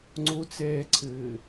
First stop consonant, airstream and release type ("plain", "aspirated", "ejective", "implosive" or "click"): click